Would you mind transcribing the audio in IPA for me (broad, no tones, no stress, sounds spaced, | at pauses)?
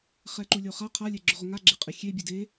χ ɛ ǃ u lʲ o χ a qʰ a lʲ ɛ ɡ͡ǁ ʊ ʁ ʊ ŋ a ɡ͡ǁ ɪ qʼ ɪ xʲ e bʲ ɛ d e